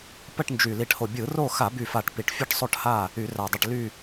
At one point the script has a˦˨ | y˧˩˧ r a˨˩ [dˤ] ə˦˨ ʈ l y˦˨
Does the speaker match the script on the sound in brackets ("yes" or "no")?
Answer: yes